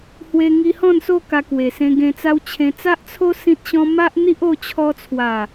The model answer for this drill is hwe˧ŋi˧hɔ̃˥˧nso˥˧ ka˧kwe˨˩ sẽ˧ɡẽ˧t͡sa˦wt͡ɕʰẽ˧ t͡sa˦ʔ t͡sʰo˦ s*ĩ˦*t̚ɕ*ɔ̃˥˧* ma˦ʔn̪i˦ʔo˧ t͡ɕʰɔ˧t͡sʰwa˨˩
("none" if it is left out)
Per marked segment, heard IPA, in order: ĩ˦, ɔ̃˦

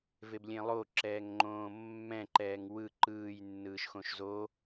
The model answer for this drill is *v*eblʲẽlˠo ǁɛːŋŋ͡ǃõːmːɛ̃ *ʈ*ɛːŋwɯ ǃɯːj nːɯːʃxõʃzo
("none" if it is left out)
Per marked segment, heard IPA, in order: v, ǃ

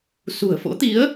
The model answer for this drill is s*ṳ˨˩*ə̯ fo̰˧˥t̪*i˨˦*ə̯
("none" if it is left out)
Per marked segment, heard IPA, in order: ṳ˨˩, i˨˦

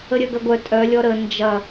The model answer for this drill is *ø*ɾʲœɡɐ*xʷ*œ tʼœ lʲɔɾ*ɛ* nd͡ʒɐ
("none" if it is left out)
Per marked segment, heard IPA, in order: ə, ɡʷ, ə

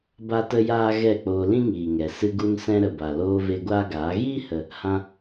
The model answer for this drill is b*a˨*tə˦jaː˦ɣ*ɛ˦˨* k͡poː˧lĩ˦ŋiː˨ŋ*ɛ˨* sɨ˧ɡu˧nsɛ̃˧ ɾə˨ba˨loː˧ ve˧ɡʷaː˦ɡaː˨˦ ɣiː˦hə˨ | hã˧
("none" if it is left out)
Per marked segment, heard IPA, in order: a˦, ɛ˦˨, ɛ˨

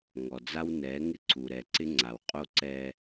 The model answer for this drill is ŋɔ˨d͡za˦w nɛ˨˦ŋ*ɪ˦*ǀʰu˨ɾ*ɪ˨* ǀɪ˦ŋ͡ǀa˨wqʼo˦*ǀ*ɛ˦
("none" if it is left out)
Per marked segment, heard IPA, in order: ɪ˦, ɛ˨, ǀ

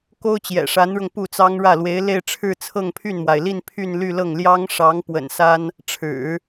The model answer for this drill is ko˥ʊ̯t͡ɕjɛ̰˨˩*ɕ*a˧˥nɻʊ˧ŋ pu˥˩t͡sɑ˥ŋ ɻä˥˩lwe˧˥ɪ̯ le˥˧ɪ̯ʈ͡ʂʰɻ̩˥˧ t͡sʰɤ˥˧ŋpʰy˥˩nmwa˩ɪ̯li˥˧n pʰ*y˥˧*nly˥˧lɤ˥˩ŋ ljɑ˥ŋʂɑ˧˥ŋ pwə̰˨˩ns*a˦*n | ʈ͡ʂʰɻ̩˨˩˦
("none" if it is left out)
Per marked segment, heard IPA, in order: ʂ, y˥˧, a˥

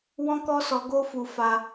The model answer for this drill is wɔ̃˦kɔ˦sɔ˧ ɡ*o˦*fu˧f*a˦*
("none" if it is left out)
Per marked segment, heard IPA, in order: o˦, a˧

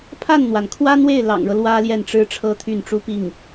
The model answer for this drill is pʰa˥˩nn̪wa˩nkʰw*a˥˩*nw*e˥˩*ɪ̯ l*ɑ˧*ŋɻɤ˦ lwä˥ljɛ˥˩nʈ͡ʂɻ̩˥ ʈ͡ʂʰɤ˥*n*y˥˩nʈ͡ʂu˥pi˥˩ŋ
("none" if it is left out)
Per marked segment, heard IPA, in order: a˥, e˥˩, ɑ̰˨˩, t̪ʰ

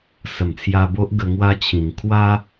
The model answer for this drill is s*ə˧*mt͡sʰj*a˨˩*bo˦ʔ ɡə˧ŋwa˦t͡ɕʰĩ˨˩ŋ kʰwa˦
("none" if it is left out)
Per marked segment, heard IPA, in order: ə˨˩, a˧

